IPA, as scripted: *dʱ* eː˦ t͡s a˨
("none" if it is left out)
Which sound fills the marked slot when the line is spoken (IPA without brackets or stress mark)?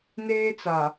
n